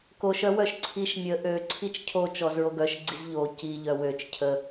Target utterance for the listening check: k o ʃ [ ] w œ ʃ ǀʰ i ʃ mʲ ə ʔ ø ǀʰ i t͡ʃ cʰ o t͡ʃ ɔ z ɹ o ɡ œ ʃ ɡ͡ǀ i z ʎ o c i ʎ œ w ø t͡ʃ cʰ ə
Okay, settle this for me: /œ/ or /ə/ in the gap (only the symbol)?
œ